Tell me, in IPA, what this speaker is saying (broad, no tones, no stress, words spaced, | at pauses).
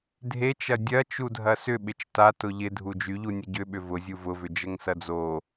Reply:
dʱet͡ʃɐ dʲɐ t͡ʃudʱɐsʏ ɓɪt͡ʃta tʊʎɪ dʱud͡ʒyʎu nʲəɟʏɓʏ vʊ zʲuvʊvʏ d͡ʒəŋsɐd͡zo